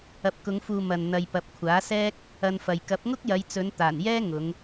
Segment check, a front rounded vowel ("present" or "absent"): absent